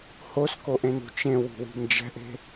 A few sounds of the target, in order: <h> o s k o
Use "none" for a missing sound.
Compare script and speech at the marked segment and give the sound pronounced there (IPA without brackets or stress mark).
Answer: h